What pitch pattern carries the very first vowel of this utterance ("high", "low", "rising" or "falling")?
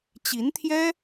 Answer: rising